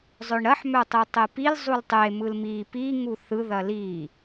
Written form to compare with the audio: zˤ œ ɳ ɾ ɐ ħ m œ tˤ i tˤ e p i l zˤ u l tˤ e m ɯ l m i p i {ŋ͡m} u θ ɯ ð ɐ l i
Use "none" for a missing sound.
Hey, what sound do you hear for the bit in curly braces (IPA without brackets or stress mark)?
ŋ